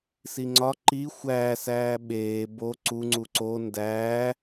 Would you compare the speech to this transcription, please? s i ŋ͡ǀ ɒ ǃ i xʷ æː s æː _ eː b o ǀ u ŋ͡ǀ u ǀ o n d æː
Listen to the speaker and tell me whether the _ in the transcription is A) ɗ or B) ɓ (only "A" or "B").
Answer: B